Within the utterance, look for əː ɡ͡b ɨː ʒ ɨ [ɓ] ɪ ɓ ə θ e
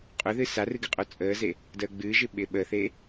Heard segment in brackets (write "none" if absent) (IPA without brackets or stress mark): ɓ